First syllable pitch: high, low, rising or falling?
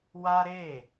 high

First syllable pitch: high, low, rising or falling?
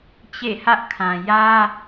falling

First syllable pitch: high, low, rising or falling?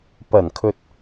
low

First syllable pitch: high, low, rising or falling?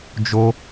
high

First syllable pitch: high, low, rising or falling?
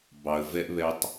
low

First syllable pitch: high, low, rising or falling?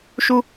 high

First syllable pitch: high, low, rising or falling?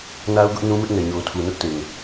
high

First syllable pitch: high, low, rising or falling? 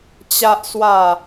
low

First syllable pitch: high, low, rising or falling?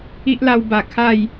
high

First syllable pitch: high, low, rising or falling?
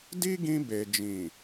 high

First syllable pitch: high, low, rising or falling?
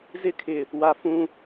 high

